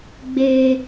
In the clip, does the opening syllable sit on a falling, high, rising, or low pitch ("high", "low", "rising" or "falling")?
high